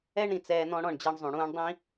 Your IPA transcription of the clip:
ɛ˦ɳ ɾĩ˨t͡sɛː˧ n̪ɔ̃˧ɽɔ̃˦˨ɳd͡ʑɛ˧ɳzˤũ˨ ɽũː˧ɳdˤĩ˦

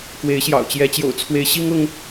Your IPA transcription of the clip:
kwe˧˥ɪ̯ɕjɑ̰˨˩ʊ̯t͡ɕjɛ˧˥ t͡ɕjo̰˨˩ʊ̯t͡sʰwe˧˥ɪ̯ ɕi˥ŋ ʊ˥ŋ

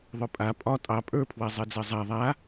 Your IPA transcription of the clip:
ðˤɵpʼa pʼɒ tʼɑ pʼə˞pʰwɛ zˤed͡zezˤa ðˤa

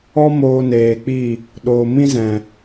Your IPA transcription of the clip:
ɔ˦ moː˧neː˨k͡pi˦˨ | ɗoː˨mĩ˦zɛ̃˨

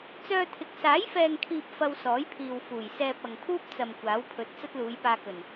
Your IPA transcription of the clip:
t͡sœː˧t̪ʰɪ˨k̚ saː˨˥jfɛː˨ŋkʰiː˨p̚ fɐ˧wsɔː˨˥jpʰiː˨w fuː˨˩jsɛː˧p̚ɐ˨ŋ pʰuː˥p̚t͡sɐ˨m kʷaː˨˥wpʰɵ˨˥t̚ t͡sɐ˥t̚luː˨˧jpaː˧kɵ˨˩n

